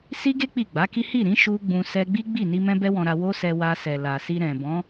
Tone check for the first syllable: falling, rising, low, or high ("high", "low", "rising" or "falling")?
high